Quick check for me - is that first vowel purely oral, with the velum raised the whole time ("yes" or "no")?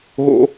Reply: yes